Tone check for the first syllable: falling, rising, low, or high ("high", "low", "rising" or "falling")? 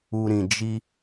low